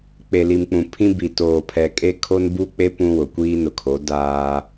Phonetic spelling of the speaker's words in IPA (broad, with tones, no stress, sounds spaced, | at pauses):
k͡p e˨ l i˨ m k͡p ũ˨ pʰ ĩ˦ b i˨ t oː˨ pʰ ɛ˨ kʼ e˦ kʰ o˦ n b u˦ k͡p e˦ p ũ˦ w ʊ˨ kʷ iː˦ n ʊ˨ kʰ o˨˦ d aː˦